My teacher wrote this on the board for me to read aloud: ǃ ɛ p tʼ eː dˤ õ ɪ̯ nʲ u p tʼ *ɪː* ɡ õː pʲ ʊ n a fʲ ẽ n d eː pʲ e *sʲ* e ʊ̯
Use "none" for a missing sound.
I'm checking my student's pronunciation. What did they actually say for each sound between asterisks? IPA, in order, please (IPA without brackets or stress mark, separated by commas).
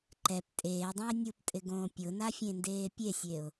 ɪ, sʲ